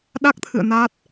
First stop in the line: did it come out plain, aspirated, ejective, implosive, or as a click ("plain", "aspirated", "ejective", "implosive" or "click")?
implosive